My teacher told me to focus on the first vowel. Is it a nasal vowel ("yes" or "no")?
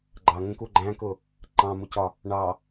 no